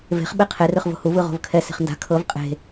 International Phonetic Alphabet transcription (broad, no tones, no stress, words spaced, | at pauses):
ve̤χ ɓeqʰer ɯχvo̤huv ɯʁo̤vkʰɛ se̤χnda̤ kʰɤv qʼe̤